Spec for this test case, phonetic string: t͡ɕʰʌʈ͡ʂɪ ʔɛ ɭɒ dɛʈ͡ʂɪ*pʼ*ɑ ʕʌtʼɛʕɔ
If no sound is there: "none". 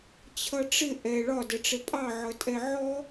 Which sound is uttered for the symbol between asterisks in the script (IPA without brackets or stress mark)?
pʼ